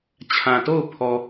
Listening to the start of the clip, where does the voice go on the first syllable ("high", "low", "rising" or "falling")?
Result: low